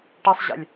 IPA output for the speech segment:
ʈisˤʑḛlʲ

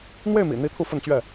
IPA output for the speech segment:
n̪we˥˨ɪ̯mḭ˨˩n̪i˨˦ t̪ʰu˥˨fə˥˨nt͡ɕɥɛ˥˨

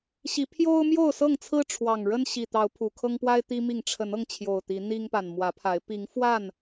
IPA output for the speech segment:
ɕi˨˦ pʰjo˦ʊ̯ mjo˥˨ʊ̯sɤ˥˨ŋt͡sʰɹ̩˦ ʈ͡ʂʰwɑ˨˩ŋɻə˦n ɕi˨˩t̪ɑ˨˦ʊ̯ pʰu˨˩kʰɤ˦ŋpwa˦ɪ̯t̪i˦ mi˥˨ŋ ʈ͡ʂʰə˨˦nɤ˧ŋt͡ɕʰjo˨˩ʊ̯ t̪i˨˦ n̪i˦ŋpa˨n mwä˨˦pʰa˨˦ɪ̯ pi˨˦ŋfwa˥˨n

